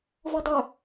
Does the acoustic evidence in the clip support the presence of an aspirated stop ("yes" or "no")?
no